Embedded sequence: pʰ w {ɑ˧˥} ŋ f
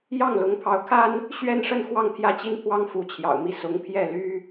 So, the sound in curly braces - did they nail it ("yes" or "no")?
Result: no